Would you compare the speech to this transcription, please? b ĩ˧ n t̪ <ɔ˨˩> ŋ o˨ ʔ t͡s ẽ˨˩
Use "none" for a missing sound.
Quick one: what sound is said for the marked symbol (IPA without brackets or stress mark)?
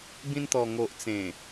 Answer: ɔ˨˩